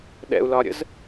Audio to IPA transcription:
ɗɛ̰u̯lɒɾʲə̰z

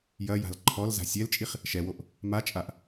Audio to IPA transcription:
jɐja̤l ǃʰɔlza̤ sʲɛlt͡ʃʼiχ | ʃɛwoʔ | mat͡ʃʼaʔ

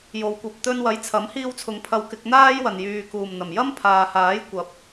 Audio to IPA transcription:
jo˨wkʷɐ˨p̚t̪ɵ˧n wɐ˨˥jt͡sʰɐ˨˥mhiː˧wt͡sʰʊ˨ŋ pʰɐ˧wkɪ˧k̚n̪aː˥j wɐ˨njyː˨kuː˨˩m n̪ɐ˨˩mjɐ˥mpʰaː˨ haː˨˥jkʷɐ˨˥p̚

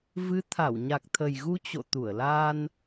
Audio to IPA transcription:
vɨ˨˦t̪ʰa˧˩w ɲa˨˩k̚t̪ʰə˨˩jɣu˧ t͡ɕo̰˧˨ t̪u˧˩ə̯laː˧n

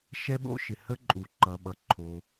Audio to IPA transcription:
ʃɛ˥ɓo̰˥ʃɪ˩ hə˥ ǃʼu˩ ǃʌ˩ ɓʌ˩ ǃʰo˩

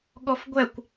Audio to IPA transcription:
ɠɔfɡʷɛkʷ

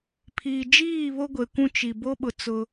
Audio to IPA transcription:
pʰiː˨d͡ʒiː˦˨βo˦ ɡʷe˨kʷũ˦t͡ʃi˨ bo˦ɓʊ˨ t͡sʊ˦

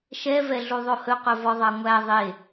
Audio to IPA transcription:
ʃɛvɛ ɮuðˤohɵqɵ vɔðˤɑŋʷæ ðˤe

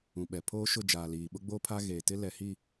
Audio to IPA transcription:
ũ˨ɓɛ˨ pʰoː˦ʃʊ˦˨ d͡ʒaː˨liː˨ ɓʊ˦ɡ͡bo˦pʰa˦ɣeː˨ tɪ˦lɛ˨hi˦˨

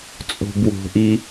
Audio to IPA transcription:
t͡sʼo̤bwo̤ʔi

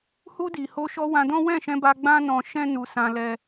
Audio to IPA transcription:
hu˧di˨ ho˧ʃɔ˧ wã˧dɔ̃˦ wɛ̃˦˨ʃɛ̃˧ba˧ ɡ͡bã˦nɔ̃˧ ʃɛ̃˦nu˧ sã˧ lɛ˦

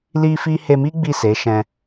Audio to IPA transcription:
li˦fi˦ he˧mi˦ ɡ͡bi˦˨se˨˦ʃɛ̃˧

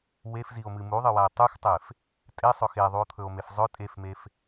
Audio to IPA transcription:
wefzio̯mɨ muðˤɨwae̯ tˤuxtˤef | tʼesˤɵ xeðˤuo̯t̪ʰɵo̯mef zˤɵ tʼefmef

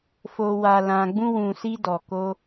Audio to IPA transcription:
fo˨ wa˨ lã˨ɡ͡bũ˧wũ˨si˧ dɔ˨ko˧

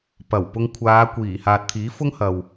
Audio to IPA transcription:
pɐ˨˩wpʊ˧ŋ kʷʰaː˨˧kʷiː˨˩ haː˨t̚t̪ʰiː˨˥fʊ˥ŋ hɐ˨w

